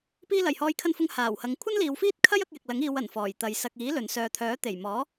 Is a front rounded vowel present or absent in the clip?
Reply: present